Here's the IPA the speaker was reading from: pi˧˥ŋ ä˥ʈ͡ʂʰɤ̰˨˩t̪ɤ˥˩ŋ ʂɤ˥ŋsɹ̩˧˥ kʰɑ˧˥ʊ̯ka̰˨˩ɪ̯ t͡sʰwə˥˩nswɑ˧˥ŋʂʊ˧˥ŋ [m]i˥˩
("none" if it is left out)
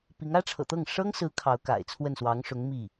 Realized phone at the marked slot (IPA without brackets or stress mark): m